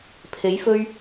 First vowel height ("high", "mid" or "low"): mid